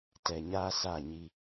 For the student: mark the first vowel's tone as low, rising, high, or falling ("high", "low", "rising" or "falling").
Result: low